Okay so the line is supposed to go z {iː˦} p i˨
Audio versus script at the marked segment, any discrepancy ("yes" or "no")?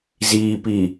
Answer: yes